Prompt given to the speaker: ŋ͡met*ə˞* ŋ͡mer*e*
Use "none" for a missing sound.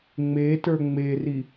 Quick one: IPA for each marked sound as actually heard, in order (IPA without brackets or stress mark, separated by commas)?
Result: ə˞, i